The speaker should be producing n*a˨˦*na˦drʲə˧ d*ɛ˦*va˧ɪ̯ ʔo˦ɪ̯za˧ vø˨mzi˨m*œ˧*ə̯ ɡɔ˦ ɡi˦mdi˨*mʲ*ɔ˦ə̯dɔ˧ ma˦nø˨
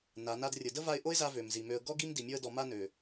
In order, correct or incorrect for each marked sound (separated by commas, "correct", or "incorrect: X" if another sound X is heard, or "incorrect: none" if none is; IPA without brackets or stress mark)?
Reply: correct, incorrect: ə˦, incorrect: ø˧, correct